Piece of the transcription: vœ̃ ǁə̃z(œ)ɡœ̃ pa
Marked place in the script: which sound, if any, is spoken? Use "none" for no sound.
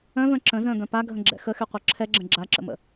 œ̃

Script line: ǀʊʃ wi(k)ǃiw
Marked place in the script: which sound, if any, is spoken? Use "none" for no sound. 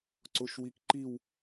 k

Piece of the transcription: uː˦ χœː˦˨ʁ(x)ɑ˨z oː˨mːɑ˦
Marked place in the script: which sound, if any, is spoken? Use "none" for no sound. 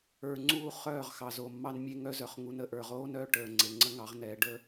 x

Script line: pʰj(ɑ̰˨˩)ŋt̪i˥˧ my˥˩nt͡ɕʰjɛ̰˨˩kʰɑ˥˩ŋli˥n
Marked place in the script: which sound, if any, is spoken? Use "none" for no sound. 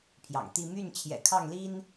ɑ̰˨˩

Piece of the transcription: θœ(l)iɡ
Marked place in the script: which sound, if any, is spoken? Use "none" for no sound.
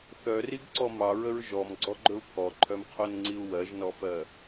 r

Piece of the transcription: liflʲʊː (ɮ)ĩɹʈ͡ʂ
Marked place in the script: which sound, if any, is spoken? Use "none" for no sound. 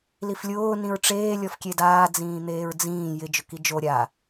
n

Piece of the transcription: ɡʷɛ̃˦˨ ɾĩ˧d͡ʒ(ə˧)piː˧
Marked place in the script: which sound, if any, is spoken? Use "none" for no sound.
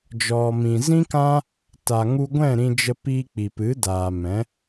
ə˧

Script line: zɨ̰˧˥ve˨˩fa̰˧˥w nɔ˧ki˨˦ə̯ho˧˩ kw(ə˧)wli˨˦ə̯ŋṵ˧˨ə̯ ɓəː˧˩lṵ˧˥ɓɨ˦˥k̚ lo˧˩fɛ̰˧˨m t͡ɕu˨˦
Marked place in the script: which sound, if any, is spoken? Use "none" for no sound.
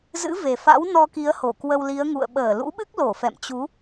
ə˧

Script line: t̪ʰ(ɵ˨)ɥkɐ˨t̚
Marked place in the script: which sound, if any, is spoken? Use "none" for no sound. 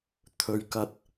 ɵ˨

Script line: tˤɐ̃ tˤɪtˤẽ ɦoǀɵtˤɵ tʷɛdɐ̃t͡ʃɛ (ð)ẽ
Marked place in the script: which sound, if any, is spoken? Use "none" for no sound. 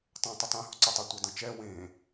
w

